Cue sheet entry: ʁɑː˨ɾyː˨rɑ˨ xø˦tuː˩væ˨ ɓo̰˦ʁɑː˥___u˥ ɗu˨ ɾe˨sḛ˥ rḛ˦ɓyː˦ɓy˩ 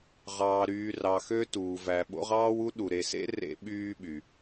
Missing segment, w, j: w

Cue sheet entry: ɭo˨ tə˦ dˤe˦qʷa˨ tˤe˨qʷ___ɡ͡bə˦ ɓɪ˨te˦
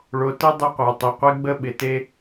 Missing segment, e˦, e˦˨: e˦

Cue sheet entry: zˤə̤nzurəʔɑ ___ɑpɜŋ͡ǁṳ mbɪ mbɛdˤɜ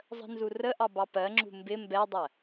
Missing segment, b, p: b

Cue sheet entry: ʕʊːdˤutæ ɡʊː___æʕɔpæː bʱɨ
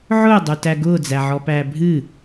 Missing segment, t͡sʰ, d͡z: d͡z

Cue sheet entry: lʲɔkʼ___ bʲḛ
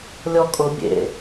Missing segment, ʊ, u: ʊ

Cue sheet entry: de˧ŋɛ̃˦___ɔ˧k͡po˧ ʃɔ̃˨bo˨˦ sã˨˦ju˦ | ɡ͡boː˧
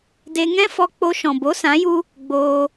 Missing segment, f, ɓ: f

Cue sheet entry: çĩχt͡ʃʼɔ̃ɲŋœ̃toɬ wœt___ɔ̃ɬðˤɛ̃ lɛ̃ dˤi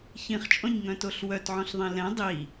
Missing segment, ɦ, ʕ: ʕ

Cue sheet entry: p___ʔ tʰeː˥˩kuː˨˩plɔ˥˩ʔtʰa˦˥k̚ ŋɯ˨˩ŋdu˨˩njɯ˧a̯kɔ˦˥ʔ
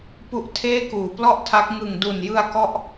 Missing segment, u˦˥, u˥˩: u˦˥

